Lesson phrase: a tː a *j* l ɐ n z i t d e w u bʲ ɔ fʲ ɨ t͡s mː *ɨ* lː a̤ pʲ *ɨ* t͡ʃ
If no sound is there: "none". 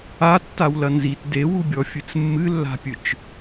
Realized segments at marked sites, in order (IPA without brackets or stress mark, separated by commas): w, ɨ, ɨ